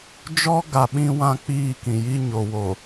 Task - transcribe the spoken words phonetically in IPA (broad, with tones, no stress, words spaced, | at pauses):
d͡ʒɔ˦ ɡa˨ ɓĩ˦wã˦ k͡piː˦˨kĩ˨ji˦ ɲo˨wo˨